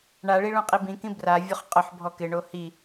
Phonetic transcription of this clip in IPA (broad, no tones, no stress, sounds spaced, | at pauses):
ɳ a ɭ i ɭ ũ qʼ i b ĩ k ĩ b r a vʲ ʊ χ qʼ ʊ ħ bʱ ɔ k ɪ ɳ o h i